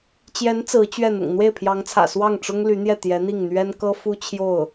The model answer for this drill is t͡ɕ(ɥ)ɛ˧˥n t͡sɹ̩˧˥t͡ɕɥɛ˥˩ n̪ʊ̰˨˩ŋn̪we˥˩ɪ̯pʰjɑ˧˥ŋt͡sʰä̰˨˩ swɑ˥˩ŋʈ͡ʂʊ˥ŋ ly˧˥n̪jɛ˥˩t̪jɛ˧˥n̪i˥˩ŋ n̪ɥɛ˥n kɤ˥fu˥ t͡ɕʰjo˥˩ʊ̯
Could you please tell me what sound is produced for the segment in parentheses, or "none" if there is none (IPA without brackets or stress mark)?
j